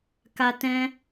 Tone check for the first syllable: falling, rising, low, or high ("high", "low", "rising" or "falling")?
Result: high